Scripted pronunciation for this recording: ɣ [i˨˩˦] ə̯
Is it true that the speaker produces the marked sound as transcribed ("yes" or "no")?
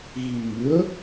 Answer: yes